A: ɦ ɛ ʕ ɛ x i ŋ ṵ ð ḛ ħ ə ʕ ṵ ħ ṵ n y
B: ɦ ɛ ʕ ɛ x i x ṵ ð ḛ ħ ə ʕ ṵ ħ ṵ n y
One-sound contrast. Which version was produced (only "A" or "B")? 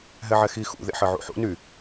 B